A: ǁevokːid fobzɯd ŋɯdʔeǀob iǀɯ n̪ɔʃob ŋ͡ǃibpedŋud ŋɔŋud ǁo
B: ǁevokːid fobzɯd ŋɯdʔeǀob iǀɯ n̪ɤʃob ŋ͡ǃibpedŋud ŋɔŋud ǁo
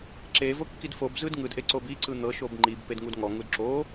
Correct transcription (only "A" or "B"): B